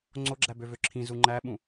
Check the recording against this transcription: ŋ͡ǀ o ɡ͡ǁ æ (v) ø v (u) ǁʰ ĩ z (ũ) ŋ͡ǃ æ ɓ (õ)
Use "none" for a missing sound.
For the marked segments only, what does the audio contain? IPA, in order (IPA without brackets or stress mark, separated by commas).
b, ø, u, ũ